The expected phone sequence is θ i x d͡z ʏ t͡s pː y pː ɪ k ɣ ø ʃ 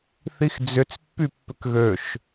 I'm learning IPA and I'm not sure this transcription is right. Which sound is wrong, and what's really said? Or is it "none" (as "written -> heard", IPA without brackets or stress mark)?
ɪ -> ʏ